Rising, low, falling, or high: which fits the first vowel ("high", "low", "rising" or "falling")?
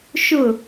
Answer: falling